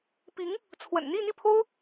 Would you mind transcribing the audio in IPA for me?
p i˧˥ ŋ | t͡sʰ w ə̰˨˩ n n̪ i˥˧ n̪ i˥˩ pʰ o˥ ʊ̯

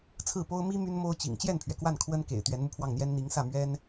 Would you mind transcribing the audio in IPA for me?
t͡sʰ ɹ̩˥˩ p o˥ ʊ̯ m i˥ m y˥ n m o˥ ʊ̯ t͡ɕ ḭ˨˩ ŋ t͡ɕ j ɛ˥˩ n pʰ ɥ ɛ˩ k w a˥˩ n kʰ w ə˥ n k ḛ˨˩ ɪ̯ t̪ ɥ ɛ˧˥ n m u˧ pʰ w ɑ˥˩ ŋ n̪ j ɛ˥ n n̪ i˧˥ ŋ s ä˥˩ m ɥ ɛ˥ n

